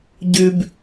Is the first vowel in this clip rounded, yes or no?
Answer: yes